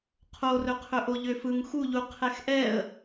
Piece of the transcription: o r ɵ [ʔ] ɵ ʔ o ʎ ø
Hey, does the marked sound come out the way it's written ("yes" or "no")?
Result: no